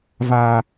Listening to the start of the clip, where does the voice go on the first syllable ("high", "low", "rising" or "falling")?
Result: high